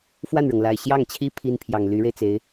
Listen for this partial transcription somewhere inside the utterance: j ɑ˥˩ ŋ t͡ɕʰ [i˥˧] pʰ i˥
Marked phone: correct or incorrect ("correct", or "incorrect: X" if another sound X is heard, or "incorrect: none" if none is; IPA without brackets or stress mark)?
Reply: incorrect: i˥